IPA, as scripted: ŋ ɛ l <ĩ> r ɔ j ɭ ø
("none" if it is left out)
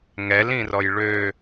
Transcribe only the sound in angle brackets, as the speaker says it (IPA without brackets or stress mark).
ĩ